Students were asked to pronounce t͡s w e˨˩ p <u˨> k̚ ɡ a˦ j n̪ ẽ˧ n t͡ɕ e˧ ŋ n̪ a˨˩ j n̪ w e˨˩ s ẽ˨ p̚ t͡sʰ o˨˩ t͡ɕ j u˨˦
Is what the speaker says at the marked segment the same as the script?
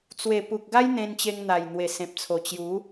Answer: yes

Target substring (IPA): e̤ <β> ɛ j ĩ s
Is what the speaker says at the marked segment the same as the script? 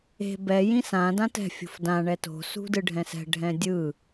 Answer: no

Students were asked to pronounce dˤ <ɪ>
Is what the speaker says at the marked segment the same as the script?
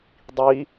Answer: no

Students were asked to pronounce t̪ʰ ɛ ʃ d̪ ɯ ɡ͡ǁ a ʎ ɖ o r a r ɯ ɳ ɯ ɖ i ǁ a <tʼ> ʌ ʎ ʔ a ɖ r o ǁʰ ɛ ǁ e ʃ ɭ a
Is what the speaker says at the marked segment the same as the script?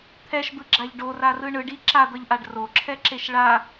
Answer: no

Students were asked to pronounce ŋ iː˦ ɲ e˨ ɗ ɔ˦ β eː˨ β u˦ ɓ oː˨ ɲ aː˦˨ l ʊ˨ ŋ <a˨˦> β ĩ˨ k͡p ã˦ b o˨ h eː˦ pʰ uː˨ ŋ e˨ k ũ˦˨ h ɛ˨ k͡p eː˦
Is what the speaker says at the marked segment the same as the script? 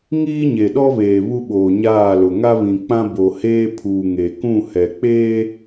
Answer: no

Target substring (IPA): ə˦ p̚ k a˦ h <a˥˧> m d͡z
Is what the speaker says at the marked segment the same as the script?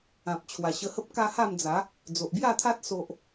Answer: yes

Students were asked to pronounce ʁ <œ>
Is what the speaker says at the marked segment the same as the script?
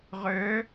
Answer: yes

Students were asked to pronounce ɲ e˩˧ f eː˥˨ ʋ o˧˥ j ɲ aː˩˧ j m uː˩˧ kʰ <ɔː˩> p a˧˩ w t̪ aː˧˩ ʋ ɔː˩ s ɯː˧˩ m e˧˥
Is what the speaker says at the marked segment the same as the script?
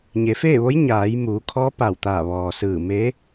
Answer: no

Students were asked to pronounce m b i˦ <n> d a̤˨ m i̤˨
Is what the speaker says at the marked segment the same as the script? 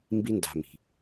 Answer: yes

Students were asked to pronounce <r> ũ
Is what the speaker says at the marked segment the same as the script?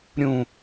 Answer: no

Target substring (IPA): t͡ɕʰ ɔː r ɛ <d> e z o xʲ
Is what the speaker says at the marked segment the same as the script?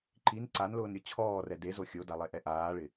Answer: yes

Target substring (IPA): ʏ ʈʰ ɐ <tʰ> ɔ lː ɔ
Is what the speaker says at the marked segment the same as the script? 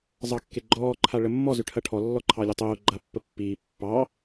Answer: no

